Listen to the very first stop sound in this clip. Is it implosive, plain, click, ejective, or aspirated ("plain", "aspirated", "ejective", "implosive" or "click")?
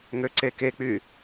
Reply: click